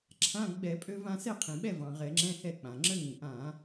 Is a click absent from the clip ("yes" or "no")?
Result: no